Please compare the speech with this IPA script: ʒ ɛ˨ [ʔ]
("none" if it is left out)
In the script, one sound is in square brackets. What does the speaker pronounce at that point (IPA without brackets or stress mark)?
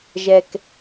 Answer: k